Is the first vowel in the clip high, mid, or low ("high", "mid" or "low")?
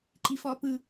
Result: high